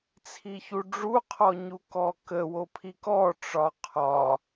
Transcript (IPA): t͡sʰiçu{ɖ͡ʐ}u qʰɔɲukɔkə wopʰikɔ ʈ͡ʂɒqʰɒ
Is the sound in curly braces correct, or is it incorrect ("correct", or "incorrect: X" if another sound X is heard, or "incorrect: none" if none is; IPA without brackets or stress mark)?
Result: correct